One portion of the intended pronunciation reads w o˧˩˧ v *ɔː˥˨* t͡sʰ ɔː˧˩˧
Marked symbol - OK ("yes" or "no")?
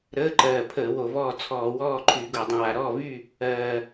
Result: yes